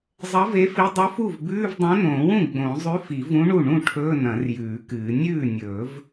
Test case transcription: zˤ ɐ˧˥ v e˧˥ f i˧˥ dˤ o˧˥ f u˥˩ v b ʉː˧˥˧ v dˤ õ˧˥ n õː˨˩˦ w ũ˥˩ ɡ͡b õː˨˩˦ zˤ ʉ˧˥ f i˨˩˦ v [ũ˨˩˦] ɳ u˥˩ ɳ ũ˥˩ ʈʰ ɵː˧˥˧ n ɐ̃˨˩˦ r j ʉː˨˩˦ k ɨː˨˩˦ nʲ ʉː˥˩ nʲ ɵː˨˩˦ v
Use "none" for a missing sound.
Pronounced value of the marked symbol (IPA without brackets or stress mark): ũ˧˥